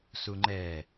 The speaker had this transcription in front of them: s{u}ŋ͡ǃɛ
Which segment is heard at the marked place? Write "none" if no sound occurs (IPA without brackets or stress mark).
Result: u